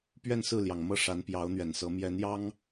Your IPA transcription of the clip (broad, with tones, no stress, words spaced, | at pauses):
pɥɛ˥˧nsɹ̩˥˩ljɑ˩ŋmɤ˥˩ ʂa˧˥npjɑ˧˥ʊ̯n̪ɥɛ˨˩nsɤ˧˥ mjɛ˧˥njɑ˥ŋ